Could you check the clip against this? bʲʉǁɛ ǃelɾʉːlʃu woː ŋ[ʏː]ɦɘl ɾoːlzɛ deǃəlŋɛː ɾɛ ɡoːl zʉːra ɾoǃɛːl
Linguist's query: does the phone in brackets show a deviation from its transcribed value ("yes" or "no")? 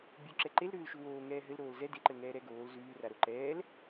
yes